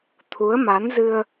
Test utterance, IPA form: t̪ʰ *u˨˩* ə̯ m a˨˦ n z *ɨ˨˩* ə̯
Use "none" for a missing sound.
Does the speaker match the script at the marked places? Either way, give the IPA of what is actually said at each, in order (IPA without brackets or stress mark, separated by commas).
u˨˦, ɨ˧